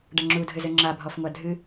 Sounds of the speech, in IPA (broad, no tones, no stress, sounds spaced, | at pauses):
ɖ ɐ ŋ͡ǁ u dʱ ɘ z ɘ ŋ͡ǁ a bʱ ɔ f ŋʷ a dʱ ɨ